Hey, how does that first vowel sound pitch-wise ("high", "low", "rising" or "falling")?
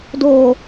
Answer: low